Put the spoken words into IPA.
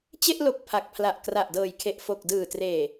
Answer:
t͡ɕ e˥˩ ʔ l o˨˩ k̚ pʰ a˨˩ k̚ pʰ l a˨˩ ʔ k r a˨˩ ʔ d ɤː˨˩ j kʰ e˨˩ ʔ f o˨˩ k̚ d ɯː˨˩ t r eː˨˩

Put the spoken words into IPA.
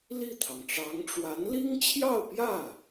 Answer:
l i˥˩ t̪ʰ ɑ˩ ŋ ʈ͡ʂ ɑ˧˥ ŋ ʈ͡ʂ w a˧˥ n l i˥ ŋ t͡ɕʰ j ɑ˥˧ ʊ̯ p j ä˥˩

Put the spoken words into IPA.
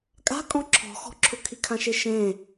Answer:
kʼ a̤ kʼ ɔ̃ ǁʰ ɔ̤ x ɔ̤ ǁʰ ʊ kʰ i kʰ ã ʃ e ʃ ẽ

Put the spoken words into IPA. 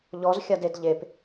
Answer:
ʎ ɔ z xʲ a d e d ʎ e p

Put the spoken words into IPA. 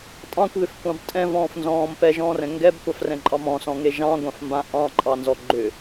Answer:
tʼ ɑ̃ kʷ ð ʏ f kʷ ɑ̃ b tʼ ɛ̃ v ɔ̃ː f n z ɔ̃ː m p ɛ ʒ ɔ̃ː r ɛ̃ ŋ ɡ ɛ b kʷ ɑ f r ɛ̃ ǃʼ ɑ m ɔ̃ s ɔ̃ ŋ e ʒ ɑ̃ ɡʷ ã f m b ã ʔ ɑ̃ ǃʼ ɑ n z ɔ ɡ͡ǃ ʏ

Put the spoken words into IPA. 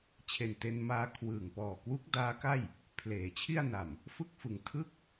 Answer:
t͡ɕʰ e˨˩ n t e˧ n m aː˧ kʰ w ɯː˨˩ ŋ p ɔː˨˩ k w u˦˥ k̚ d aː˦˥ k a˥˩ j | pʰ l eː˩˦ t͡ɕʰ i˥˩ a̯ n a˨˩ m | f ɯ˥˩ k̚ f ɯ˨˩ ŋ tʰ ɯ˥˩ k̚

